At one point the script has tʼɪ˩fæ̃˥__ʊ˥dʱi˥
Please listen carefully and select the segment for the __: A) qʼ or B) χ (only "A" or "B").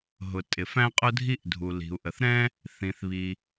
A